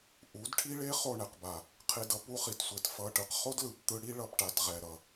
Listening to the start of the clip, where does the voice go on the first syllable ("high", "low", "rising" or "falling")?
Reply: rising